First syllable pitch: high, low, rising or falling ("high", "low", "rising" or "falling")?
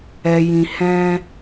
low